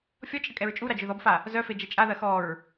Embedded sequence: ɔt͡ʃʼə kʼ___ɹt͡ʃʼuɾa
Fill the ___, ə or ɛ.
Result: ɛ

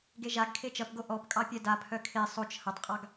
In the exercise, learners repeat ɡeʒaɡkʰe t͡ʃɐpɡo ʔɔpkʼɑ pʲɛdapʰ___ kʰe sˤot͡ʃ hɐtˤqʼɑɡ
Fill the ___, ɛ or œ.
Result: œ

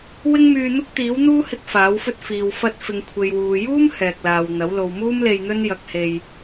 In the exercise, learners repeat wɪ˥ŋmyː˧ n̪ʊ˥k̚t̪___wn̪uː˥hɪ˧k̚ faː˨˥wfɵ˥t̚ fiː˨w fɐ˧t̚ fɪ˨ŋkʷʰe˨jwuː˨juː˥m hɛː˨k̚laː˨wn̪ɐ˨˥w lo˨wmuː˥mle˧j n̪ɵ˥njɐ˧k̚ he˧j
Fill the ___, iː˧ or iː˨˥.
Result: iː˨˥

